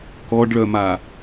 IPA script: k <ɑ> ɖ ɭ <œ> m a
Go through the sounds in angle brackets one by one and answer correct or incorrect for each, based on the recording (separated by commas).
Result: incorrect, correct